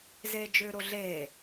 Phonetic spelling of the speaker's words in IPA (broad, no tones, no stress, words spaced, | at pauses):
zeːd͡ʒʏːɾoɮeː